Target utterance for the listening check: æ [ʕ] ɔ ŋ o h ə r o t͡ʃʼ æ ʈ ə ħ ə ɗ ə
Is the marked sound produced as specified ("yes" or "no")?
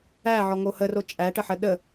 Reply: yes